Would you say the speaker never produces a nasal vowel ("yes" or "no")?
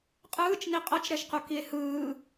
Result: yes